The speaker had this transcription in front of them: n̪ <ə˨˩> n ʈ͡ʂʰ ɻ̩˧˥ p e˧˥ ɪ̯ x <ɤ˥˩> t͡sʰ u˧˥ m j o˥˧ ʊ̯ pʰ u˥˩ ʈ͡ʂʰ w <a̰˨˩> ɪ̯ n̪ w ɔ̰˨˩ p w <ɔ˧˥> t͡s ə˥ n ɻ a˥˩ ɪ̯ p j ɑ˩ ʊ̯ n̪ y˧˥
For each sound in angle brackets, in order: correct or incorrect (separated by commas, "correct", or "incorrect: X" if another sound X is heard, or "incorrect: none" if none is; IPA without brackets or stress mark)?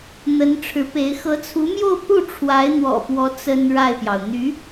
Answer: incorrect: ə˧˥, incorrect: ɤ˧˥, incorrect: a˧˥, correct